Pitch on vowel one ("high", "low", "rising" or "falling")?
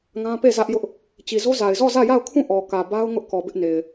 high